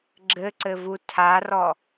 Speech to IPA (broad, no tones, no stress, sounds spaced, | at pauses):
ɡ͡ǁ ɘ ǀ ɘ v u tʰ a r ɔ